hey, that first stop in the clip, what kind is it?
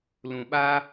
implosive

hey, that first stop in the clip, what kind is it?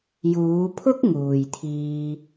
aspirated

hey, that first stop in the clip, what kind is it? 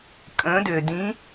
ejective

